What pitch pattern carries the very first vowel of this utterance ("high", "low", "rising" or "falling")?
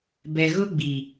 low